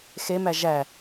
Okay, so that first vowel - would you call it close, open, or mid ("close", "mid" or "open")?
mid